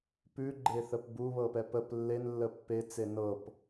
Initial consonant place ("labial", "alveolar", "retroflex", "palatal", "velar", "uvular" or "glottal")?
labial